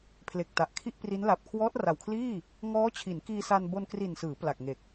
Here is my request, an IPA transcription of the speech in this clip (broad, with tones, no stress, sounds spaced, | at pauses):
pʰ l e˨˩ k̚ t a˨˩ ʔ kʰ i˥˩ ʔ p r i˦˥ n l a˨˩ p̚ kʰ w ɔː˦˥ t̚ r a˨˩ w kʰ l iː˥˩ | ŋ ɔː˦˥ t͡ɕʰ i˩˦ n k iː˧ s a˧ n b o˧ n k r i˨˩ n s ɯː˩˦ p l a˨˩ k̚ ŋ e˨˩ k̚